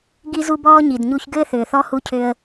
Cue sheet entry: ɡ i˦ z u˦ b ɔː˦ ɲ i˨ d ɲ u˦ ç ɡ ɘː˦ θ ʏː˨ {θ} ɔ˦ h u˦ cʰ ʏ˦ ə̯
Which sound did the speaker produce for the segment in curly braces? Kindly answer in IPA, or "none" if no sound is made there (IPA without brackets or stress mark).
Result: θ